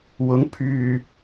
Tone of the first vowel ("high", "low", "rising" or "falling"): rising